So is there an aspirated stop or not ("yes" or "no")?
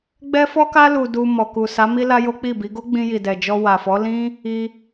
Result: no